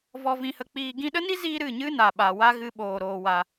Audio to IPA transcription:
v ɔ˧ v ĩ˧ h ə˧ k͡p iː˧ ɡ ĩ˧ ɗ ə˦ n i˦ z iː˧ ɾ ɨ˦˨ ɲ ɨ˦ n a˨ ɓ a˨ w a˦ ɣ ɨ˧ ɓ oː˨ ɾ oː˨ w a˨

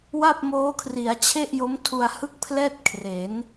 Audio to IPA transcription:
w a˥˩ p̚ m oː˦˥ kʰ r i˩˦ a̯ t͡ɕʰ e˥˩ ʔ j o˦˥ m tʰ u˧ a̯ h ɯ˥˩ k̚ pʰ l ɛː˥˩ t̚ kʰ r e˩˦ n

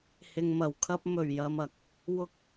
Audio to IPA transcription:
h ɪ˨ ŋ m ɐ˨˩ w kʰ ɐ˧ p̚ m ɵ˨˩ ɥ j ɐ˨ m ɐ˨ k̚ | w ʊ˧ k̚

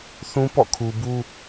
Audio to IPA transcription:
θ ũ˦ p ɔ̰˦˨ kʰ u˨ b u˦

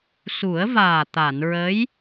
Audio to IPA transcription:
s u˨˩˦ ə̯ v aː˨˩ t̪ a˨˩˨ n ɹ ə˧˥ j

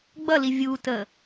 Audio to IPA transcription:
ɡ͡b ʌ l i vʲ u t ə

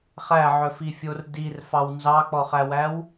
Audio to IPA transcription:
χ æ ʕ œ f i fʲ o r d i r f ɑ w n z ɑ k͡p ɔ χ æ w æ w

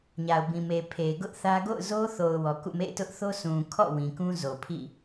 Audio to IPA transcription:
ɲ a˨ ʊ̯ b ĩ˨ m e˨ pʰ e˨ ɡ ʊ˦ ʔ θ ä˦ ɡ o̰˦˨ ʊ̯ z o˦ θ o˨ ʊ̯ w ɔ˨ k ṵ˦˨ m ḛ˦˨ ɪ̯ t ʊ˦ ʔ θ o˦ s ũ˨ kʰ ɔ̰˦˨ w ĩ˨ k ũ˦ z o˨ pʰ ḭ˦˨

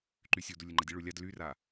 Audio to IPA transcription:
ǃ y sʲ u d u lʲ ə ŋ͡ǃ a dʲ ə ɭ u lʲ a d l y r a

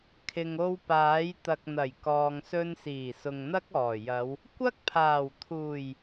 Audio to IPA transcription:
kʰ ɪ˨ ŋ o˧ w p aː˨˥ j t̪ ɐ˨ k̚ n̪ ɐ˨˩ j k ɔː˨ ŋ s ɵ˧ n s iː˨˩ s ʊ˨ ŋ n̪ ɐ˥ k̚ ɔː˨˩ j ɐ˨˧ w | kʷ ɐ˥ k̚ pʰ aː˨˩ w t̪ʰ uː˨˩ j

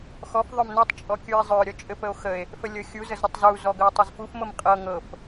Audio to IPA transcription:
x ɔ f ðˤ œ m n œ tˤ t͡ʃʼ ɔ kʲ u e̯ zˤ œ ɾʲ ɔ t͡ʃʼ ɘ p ə o̯ x ə e̯ | f ə lʲ ɤ xʲ u z ə z ɾʲ ɤ tˤ z u z ɔ ɡ œ o̯ tˤ ə z f u f m ɤ m qʼ ɤ ŋ ɤ f

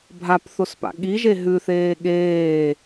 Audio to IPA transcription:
bʱ a p θ o s p a̰ ɠ i ʒ e ɦ ʉ θ eː ɠ eː

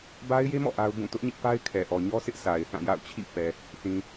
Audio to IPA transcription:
b a˦ ɪ̯ j e˦ m ɔ̰˦˨ ʔ a˦ ʊ̯ b ũ˦˨ t ʊ˦ ʔ ɲ ɪ˦ ʔ p a˦ ɪ̯ kʰ ɛ˨ ʔ ɔ˨ ɲ ɔ˦ s ɪ˦ ʔ s a˨ ɪ̯ θ ã˦˨ j a̰˦˨ ʊ̯ t͡ɕʰ ḭ˦˨ p ɛ˨ | θ ĩ˨

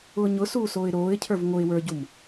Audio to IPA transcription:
ʊː ɲ ʊ s uː s oː ɪ̯ ɾ oː ɪ̯ cʰ ə˞ v ŋ o ɪ̯ w ə˞ ɟ u m

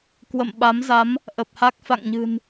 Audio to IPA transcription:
k w ə̰˧˨ m ɓ a˨˦ m z a˨˦ m | ʔ ə˨˩ p̚ h a˦˥ k̚ f a̰˧˨ ŋ ɲ ɨ̤˨˩ n

